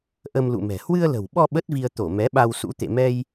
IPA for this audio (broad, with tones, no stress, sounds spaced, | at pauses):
ʔ ə˧ m l ṵ˧˨ m ɛ̤˨˩ h w ɨ˧ ə̯ l ə̤˨˩ w ɓ ɔ˧ ɓ ə˦˥ t̚ v i˧ ə̯ t̪ o˧˩ m ɛ˨˦ ɓ a˧ w s ṵ˧˥ t̪ ḛ˧˨ m ɛ˧ j